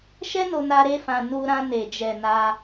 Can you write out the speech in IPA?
ʃ ɛ˦ n o˧ n a˧ ɾ e˦ f ã˧ n u˧ ɾ ã˧ n e˨ d͡ʒ ɛ˨ n a˧

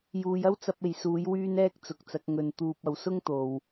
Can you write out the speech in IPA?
j uː˨˧ j ɐ˥ w t͡s ɐ˧ p̚ e˨ j s uː˨˥ j w yː˥ n ɛː˥ k̚ t͡s ʊ˨ k̚ t͡s ɐ˨˥ k̚ ŋ ɵ˨˧ n t̪ uː˧ p̚ ɐ˧ w s ʊ˥ ŋ t̪ o˨ w

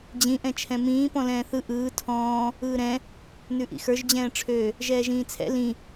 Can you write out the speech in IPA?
d͡ʑ ĩ ʔ ɛ̃ t͡ʃʰ ɛ̃ m ĩː p ɔ̃ l ɛ̃ː θ ɯ ʔ ɯː tʰ ɔ̃ː | ɯː ɾ ɛ̃ | n ʉ ʔ ḭ x ə˞ ʒ d͡ʑ ɛ̃ː ʈ͡ʂʰ ø | ʒ ɛː ʒ ĩː t͡sʰ ɛ̰ l ĩ

